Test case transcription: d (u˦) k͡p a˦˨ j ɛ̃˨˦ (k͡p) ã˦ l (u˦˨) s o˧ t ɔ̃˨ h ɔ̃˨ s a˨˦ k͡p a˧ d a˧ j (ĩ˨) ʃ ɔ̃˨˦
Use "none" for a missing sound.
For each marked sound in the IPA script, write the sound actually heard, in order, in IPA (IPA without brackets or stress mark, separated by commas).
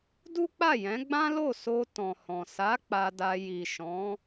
u˦, ɡ͡b, o˦˨, i˨